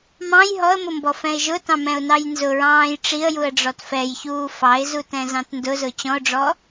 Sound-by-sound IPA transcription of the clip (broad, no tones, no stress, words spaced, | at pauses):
mɑ̃j ɦɔə̯mʊmbɔfɛ̃ɪ̯ ʒʊtɑ̃mɛ̃ʊ̯nɑj nzʊɹɑ̃ːj ʈ͡ʂiə̯juə̯ɖ͡ʐɔt fɛjçuː fɑɪ̯zutɛ̃zɑ̃t ndʊzʊ t͡ɕɔ̃ʊ̯ɖ͡ʐɔ